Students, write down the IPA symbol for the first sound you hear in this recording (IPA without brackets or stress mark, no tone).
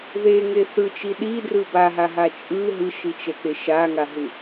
ð